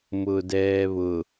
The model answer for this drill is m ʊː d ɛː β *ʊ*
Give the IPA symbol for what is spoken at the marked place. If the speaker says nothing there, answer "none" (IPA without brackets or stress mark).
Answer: ʊ